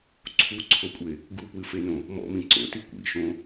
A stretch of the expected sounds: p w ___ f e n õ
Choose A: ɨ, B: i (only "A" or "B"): A